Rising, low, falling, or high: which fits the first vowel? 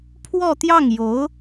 falling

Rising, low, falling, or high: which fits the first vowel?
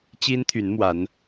high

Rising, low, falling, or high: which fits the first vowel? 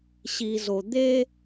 low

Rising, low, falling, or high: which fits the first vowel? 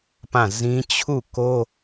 falling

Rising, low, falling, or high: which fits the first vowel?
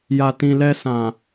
low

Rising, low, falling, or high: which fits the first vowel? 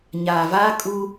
low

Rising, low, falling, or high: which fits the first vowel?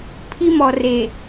high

